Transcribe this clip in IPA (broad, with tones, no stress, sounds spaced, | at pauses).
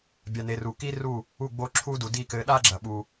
bʲ a˨ n e˨ r u˨ k i˦ r u˦˨ | u˦˨ ɡ͡b o˦ ǁʰ u˦ d u˨ d i˦˨ k ɘ˨˦ ɗ a˦ ɡ͡ǁ ɐ˨ ɓ u˦